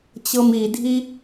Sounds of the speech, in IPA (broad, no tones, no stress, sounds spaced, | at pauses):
t͡ɕ ɤ m i dʱ i